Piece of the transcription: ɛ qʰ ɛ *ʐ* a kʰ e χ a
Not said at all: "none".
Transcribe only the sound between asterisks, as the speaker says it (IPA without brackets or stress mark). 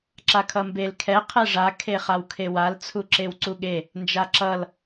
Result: ʐ